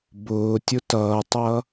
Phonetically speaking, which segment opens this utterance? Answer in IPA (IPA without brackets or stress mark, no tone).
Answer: b